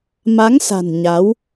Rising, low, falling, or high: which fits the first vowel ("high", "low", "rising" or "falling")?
rising